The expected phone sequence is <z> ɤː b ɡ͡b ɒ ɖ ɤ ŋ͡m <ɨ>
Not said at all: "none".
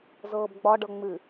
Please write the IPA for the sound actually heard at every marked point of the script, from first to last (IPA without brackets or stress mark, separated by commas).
z, ɨ